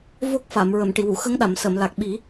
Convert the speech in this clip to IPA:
v o˦˥ k̚ f a˨˩˨ m ɹ ə˨˩˨ m ʈ i˨˩˨ w u˨˩˨ x ə˧˥ ŋ ɗ a˨˩˨ m s ə˨˩˨ m l a˨˩ k̚ ɓ i˨˩˦

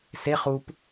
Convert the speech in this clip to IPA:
s e χ u p

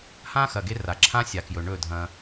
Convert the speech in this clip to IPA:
h ã˦ x ɐ˨ ɡ e˦ r a˨ ǁʰ ã˦ sʲ a˨ k j ɵ˨ ɳ ɵ˦˨ dʱ ɐ̃˦

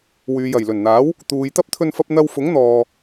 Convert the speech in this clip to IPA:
w yː˨ j ɐ˨˩ j l ɵ˨˩ n n̪ aː˨˥ w | t̪ uː˨ j t̪ ɐ˥ p̚ t̪ʰ ɵ˧ n f ɐ˧ p̚ n̪ ɐ˧ w f ʊ˨˥ ŋ n̪ ɔː˨

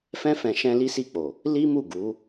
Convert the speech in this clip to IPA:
f ɛ̃˧ f ɛ̃˨ ʃ ɛ̃˧ l i˦ s i˦˨ k͡p o˨ | l i˦ m u˦˨ ɡ u˨˦

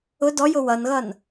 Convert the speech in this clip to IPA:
ʊ d ɔ j ʊ w ʌ n ɣ ʌ n

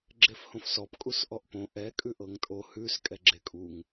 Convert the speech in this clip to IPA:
ɡ͡ǁ e f h õ f s ɔ p kʼ u s ʔ ɔ ʔ p õ ʔ ɛ kʼ ʉ ʔ ɤ ŋ tʼ o h ʉ s kʼ ɛ ɡ͡ǁ e kʼ u ŋ

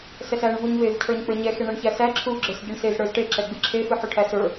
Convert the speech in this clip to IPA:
s ɛ s æ ɳ v u ɲ v e v cʰ ə˞ ɲ k͡p ə˞ ɲ ɛ x e ɳ ɛ ɳ ç æ s æ ǁʰ u ɡ͡ǁ ə˞ s ɟ ɨ ɳ s e z ɽ ə˞ z ʈ e ǁ ɛ ɡ͡b ɨ ǁʰ e f ɨ ħ u ʈʰ æ s ə˞

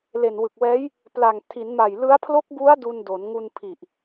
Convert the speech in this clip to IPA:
l e˨˩ n w ɯ˨˩ k̚ w ɛː˦˥ j | p l a˨˩ ŋ tʰ i˩˦ n m a˨˩ j l ɯ˦˥ a̯ pʰ l o˦˥ k̚ b u˦˥ a̯ d u˧ n d o˩˦ n ŋ u˧ n pʰ i˨˩ ʔ

